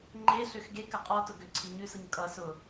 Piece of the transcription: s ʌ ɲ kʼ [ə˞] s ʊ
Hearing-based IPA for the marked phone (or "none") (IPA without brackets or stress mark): ʌ